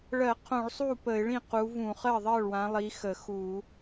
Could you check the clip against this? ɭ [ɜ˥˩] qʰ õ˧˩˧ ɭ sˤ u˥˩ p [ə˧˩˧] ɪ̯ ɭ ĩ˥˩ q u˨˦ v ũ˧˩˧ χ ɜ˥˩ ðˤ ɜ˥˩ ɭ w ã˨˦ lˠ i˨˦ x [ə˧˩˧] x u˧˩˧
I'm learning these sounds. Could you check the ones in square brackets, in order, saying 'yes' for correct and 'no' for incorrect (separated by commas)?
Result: no, yes, yes